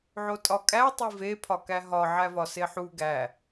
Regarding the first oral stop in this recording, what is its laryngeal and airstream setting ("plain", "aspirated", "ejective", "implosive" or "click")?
ejective